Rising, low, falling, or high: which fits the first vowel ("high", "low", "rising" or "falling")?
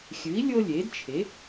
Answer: rising